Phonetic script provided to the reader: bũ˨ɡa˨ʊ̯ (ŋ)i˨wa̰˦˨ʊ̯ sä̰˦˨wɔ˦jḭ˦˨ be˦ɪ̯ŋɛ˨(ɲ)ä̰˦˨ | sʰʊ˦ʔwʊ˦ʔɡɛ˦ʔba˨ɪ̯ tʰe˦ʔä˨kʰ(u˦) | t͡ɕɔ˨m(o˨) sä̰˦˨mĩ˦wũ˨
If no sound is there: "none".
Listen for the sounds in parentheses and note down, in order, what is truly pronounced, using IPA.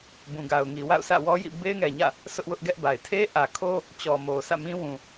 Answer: ŋ, ɲ, o˦, o˨

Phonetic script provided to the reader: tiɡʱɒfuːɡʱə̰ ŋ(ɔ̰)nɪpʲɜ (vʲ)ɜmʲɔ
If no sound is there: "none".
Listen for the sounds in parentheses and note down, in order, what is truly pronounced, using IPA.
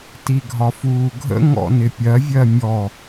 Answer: ɔ̰, vʲ

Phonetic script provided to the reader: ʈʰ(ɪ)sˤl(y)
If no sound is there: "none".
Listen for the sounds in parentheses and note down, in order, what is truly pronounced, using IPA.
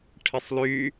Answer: ɪ, y

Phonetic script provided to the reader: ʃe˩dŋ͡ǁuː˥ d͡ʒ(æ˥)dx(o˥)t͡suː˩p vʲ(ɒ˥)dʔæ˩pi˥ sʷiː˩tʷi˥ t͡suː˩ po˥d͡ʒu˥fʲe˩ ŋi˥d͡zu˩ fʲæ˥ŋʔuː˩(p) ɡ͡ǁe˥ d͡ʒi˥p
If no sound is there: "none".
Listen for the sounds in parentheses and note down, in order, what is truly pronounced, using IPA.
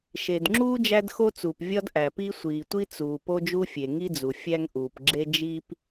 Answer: æ˥, o˥, ɒ˥, p

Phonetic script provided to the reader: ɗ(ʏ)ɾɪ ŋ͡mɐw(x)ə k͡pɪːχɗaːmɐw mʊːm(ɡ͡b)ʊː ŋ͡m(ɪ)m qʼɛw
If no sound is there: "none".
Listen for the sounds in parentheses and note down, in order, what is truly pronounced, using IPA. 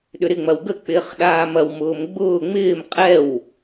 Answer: ʏ, ɡ, ɡ͡b, ɪː

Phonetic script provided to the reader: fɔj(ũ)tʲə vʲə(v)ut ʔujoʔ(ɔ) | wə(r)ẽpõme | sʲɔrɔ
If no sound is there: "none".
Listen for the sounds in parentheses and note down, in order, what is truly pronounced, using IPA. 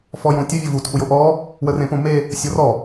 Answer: õ, v, ɔ, r

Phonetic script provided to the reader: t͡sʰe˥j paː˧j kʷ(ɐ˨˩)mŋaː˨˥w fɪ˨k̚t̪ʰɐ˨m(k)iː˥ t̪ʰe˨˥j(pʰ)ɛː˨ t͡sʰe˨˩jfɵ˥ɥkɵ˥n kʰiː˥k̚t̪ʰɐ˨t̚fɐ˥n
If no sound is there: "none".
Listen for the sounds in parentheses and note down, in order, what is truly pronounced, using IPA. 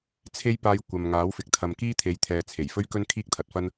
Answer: ɐ˨, k, t̪ʰ

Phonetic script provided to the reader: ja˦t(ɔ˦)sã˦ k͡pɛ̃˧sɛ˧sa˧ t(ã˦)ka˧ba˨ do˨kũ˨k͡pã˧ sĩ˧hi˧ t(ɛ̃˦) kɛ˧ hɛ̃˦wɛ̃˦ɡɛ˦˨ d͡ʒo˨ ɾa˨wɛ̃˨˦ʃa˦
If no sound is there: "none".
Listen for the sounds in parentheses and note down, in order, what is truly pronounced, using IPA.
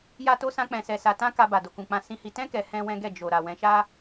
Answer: o˦, ã˦, ɛ̃˦

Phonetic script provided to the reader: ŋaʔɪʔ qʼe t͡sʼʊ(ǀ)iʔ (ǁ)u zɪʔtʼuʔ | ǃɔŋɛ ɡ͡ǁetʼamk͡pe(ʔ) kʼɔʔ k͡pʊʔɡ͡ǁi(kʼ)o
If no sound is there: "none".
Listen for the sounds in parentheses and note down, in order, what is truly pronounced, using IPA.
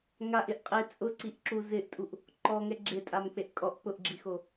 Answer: ǀ, ǁ, ʔ, x

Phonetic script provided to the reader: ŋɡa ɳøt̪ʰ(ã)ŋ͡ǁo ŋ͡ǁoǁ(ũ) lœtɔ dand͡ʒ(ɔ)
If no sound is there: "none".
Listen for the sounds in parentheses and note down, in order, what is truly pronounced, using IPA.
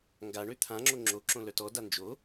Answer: ã, õ, o

